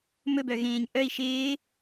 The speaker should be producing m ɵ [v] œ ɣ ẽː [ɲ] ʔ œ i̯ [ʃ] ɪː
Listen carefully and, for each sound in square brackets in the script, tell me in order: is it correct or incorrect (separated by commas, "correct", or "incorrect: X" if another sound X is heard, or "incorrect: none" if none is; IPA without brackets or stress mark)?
incorrect: b, correct, correct